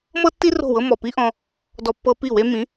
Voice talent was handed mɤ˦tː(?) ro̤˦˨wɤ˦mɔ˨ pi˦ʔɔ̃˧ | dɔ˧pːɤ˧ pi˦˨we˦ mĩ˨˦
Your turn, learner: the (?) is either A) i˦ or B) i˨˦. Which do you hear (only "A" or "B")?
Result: A